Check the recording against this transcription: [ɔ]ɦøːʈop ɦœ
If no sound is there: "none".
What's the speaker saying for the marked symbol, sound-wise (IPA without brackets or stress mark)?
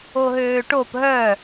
o